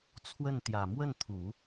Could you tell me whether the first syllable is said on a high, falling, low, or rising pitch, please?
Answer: falling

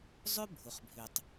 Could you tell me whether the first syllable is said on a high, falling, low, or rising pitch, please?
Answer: high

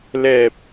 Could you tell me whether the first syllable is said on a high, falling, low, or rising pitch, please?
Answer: low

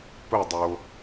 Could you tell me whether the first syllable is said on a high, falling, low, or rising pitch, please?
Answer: falling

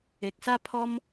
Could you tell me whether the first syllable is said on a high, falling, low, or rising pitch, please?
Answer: low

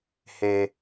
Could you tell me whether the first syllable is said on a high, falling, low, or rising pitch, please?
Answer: high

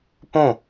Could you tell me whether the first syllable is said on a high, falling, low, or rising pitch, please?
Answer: falling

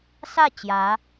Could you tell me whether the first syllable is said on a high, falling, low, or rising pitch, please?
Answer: falling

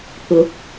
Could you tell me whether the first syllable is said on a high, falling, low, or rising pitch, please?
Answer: rising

